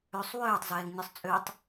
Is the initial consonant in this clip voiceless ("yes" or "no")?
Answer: yes